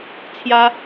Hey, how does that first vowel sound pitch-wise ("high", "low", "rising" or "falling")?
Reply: high